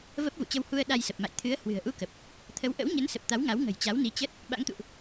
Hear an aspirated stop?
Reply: yes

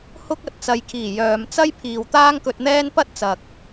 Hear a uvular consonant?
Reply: no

